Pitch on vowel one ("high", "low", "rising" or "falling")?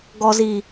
low